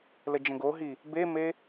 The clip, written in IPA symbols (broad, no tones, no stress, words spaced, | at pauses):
ləd͡ʒə̃ɡoɦi | beme